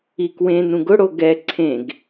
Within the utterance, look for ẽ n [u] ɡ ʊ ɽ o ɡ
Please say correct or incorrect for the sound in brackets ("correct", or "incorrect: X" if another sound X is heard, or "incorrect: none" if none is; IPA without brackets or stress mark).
incorrect: ũ